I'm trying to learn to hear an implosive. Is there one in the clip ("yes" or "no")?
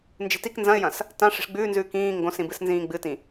no